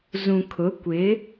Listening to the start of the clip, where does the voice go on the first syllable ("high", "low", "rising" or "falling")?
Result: low